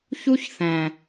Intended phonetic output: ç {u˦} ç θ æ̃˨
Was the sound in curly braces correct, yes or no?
yes